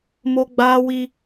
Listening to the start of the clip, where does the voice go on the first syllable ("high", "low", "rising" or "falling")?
high